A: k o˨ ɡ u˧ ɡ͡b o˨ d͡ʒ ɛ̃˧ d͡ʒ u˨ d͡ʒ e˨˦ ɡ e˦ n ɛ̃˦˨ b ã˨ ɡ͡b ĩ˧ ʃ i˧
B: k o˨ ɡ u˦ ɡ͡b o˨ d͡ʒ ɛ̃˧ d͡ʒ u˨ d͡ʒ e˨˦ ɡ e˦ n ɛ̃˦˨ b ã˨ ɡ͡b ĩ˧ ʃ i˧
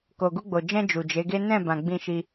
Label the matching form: A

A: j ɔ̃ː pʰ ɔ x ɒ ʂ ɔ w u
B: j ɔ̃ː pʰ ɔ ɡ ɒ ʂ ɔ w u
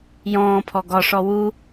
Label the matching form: B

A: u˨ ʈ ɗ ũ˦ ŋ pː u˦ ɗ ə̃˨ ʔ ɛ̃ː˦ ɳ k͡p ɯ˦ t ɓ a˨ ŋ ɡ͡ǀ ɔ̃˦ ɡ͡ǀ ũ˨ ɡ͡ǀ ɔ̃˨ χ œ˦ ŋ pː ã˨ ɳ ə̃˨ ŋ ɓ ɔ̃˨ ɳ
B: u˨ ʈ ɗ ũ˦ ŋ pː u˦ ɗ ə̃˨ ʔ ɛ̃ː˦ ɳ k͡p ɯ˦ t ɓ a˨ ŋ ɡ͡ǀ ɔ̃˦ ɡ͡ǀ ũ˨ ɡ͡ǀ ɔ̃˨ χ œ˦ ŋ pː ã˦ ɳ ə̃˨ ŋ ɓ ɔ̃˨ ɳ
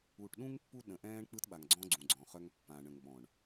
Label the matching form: A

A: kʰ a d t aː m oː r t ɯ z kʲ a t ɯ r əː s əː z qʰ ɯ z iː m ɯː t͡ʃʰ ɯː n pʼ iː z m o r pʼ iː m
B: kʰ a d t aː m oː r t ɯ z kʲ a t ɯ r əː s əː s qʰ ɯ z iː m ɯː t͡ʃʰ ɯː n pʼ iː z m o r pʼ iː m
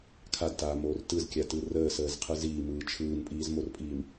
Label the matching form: A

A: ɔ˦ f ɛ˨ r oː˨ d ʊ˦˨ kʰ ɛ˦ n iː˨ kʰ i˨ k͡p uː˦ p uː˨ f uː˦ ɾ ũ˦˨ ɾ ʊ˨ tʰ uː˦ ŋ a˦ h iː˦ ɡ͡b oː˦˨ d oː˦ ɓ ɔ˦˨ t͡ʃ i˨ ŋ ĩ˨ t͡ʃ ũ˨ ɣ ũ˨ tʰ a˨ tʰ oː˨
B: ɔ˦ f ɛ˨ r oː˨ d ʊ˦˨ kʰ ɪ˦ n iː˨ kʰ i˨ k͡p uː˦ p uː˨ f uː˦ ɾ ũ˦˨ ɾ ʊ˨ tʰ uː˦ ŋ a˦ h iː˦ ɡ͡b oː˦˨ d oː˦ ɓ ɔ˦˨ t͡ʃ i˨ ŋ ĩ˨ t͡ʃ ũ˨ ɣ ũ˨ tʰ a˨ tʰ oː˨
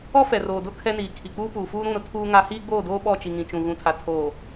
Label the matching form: A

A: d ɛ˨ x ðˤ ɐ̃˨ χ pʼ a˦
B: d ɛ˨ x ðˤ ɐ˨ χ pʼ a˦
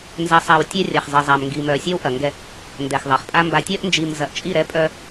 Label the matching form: B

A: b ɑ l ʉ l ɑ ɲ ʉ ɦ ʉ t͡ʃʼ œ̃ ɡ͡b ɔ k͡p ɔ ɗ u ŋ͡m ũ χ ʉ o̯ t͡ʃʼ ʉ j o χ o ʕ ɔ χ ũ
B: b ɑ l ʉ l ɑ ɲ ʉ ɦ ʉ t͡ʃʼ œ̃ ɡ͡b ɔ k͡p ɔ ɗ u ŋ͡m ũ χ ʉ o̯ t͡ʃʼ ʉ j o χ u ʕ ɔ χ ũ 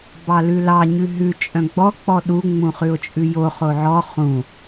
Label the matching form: A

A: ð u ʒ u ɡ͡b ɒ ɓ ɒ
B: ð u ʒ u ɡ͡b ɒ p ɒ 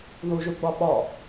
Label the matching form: A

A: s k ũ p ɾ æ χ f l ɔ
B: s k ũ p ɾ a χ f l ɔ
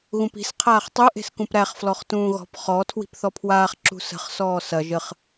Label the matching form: A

